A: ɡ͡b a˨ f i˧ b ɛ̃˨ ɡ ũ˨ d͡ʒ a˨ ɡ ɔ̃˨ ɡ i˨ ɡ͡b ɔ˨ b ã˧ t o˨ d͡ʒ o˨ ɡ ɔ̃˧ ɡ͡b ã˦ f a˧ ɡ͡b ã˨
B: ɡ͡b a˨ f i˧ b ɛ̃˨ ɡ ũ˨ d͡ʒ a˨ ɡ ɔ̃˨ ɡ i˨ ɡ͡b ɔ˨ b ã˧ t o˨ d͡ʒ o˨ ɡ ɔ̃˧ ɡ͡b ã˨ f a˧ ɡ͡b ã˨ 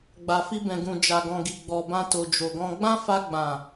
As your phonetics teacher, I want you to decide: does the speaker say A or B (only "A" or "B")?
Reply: A